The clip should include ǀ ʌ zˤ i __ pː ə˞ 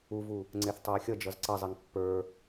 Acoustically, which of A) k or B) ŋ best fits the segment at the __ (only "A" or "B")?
B